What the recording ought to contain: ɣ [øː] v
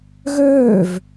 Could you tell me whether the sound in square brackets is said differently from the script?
no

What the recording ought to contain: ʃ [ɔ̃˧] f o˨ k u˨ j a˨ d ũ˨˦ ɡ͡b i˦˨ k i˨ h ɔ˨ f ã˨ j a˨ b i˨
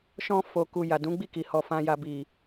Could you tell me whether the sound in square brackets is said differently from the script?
no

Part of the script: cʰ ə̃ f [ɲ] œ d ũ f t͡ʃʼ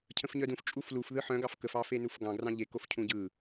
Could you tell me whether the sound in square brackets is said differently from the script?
no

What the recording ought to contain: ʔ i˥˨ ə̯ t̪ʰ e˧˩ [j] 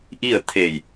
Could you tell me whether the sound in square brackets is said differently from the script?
no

